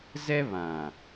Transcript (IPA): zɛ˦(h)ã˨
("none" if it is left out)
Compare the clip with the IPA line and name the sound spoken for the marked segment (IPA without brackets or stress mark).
β